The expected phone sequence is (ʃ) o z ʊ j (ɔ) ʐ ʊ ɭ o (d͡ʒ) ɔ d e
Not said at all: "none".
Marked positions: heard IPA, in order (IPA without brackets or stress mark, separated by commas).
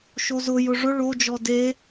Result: ʃ, ʊ, d͡ʒ